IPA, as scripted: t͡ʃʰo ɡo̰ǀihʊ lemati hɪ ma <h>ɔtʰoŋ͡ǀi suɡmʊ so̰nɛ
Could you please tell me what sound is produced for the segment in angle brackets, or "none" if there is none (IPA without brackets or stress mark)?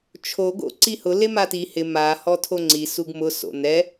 h